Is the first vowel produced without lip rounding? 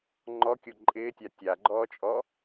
no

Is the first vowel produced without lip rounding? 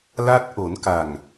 yes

